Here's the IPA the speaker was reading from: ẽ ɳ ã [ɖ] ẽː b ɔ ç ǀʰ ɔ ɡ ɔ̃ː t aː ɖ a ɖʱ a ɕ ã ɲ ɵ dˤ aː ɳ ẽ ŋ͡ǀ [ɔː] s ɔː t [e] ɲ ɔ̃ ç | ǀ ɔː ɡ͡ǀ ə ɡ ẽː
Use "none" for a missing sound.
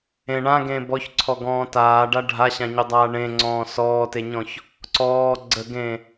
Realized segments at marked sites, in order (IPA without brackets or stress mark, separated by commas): ɡ, ɔ̃ː, e